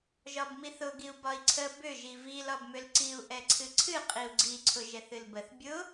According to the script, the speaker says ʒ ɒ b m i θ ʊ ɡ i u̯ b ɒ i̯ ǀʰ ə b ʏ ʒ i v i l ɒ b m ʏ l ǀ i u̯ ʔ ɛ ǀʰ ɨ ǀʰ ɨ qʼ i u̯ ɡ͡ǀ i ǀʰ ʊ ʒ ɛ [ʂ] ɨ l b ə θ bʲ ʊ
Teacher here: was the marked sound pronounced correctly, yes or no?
no